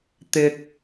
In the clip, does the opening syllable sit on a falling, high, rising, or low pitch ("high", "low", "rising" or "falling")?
low